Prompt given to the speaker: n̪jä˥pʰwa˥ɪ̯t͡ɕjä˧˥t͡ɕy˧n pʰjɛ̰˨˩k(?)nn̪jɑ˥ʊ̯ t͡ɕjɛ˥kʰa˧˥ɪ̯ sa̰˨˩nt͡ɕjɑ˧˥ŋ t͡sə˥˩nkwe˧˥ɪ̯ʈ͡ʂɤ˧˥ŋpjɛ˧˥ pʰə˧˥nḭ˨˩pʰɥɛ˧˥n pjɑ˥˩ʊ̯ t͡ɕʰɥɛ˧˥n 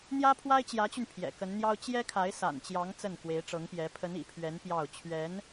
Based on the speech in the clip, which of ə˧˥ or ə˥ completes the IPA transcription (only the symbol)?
ə˧˥